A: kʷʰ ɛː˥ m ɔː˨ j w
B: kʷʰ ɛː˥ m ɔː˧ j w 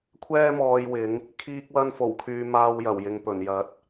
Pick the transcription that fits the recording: B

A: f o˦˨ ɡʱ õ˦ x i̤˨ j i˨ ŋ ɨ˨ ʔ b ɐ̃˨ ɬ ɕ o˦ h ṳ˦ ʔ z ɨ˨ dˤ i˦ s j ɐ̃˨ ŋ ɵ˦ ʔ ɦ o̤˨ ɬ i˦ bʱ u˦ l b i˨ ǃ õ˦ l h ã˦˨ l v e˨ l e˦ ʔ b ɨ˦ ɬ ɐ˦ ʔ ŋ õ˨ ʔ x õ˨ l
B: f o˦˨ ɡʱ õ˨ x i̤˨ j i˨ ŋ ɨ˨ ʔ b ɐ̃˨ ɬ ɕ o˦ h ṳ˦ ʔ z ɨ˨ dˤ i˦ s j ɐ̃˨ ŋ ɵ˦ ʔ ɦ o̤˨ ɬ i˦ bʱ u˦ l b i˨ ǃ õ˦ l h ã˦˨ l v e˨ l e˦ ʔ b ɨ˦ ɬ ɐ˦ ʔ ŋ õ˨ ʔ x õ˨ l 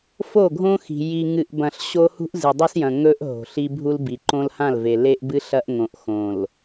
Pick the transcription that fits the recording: A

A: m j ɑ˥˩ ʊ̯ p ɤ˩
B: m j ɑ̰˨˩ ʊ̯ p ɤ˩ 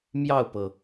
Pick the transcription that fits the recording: A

